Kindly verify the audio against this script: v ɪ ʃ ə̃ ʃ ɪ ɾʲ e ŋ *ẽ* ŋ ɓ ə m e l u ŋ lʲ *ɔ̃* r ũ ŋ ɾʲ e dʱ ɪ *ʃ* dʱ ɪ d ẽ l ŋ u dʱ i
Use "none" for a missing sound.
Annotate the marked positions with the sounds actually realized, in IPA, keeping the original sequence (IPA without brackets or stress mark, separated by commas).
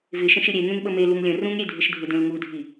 ẽ, ə̃, ʃ